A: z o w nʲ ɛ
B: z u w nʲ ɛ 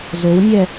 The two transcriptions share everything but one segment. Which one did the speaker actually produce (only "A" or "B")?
A